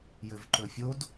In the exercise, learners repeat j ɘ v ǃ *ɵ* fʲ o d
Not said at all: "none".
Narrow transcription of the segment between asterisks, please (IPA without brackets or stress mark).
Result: ɵ